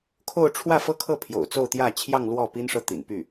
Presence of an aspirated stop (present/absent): present